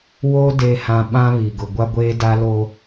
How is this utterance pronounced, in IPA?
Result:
w oː˦ d eː˨ h ã˨ ɓ ã˦ β i˨ ɡ ʊ˨ ɡʷ a˦ ɡʷ eː˦ d a˦ l o˦

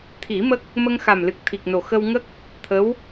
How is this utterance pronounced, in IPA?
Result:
t̪ʰ i˨˩˦ m ə˦˥ k̚ | m ə˧ ŋ x a˨˩ m l ɨ˨˩ k̚ t̪ʰ i˨˩ k̚ n o˨˩ x ə˧ w ŋ ə˦˥ k̚ | t̪ʰ ə˧˥ w

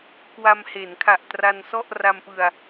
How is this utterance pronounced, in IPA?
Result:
k w a˧ m h e˩˦ n kʰ a˨˩ ʔ t r a˧ n s ɔ˥˩ ʔ r a˧ m p ɯ˧ a̯

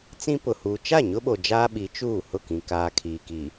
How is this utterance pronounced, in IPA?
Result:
t͡s ĩ˦ p ʊ˨ h uː˨ t͡ʃ a˦˨ ɲ ʊ˦ ɓ o˨ d͡ʒ aː˦ ɓ i˨˦ t͡ʃ uː˦˨ h ʊ˦˨ k ĩ˨ k aː˨ kʰ iː˨ k iː˨

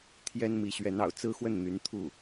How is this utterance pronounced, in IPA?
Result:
t̪ʰ j ɛ˥ n m i˧˥ ɕ ɥ ɛ˧˥ n ɑ̰˨˩ ʊ̯ t͡s ɹ̩˥ x w ə˥˩ n n̪ y˧˥ n t̪ʰ u˥˩

